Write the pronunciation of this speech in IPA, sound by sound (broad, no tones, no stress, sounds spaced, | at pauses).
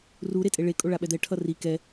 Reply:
r u ɾ e tʼ e ɭ e kʼ o ɭ a ɓ ɛ d̪ ɛ ʈʰ ʌ r i k ɛ